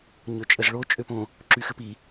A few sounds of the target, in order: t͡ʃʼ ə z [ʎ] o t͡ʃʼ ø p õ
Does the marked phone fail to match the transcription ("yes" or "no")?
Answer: yes